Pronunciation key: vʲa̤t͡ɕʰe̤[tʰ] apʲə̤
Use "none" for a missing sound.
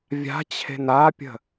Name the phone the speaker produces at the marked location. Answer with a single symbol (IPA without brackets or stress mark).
n